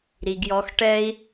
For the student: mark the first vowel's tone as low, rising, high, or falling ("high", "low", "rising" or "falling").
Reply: low